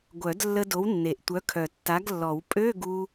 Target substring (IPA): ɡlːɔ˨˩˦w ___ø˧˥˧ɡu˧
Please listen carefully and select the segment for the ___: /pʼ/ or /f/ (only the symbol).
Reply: pʼ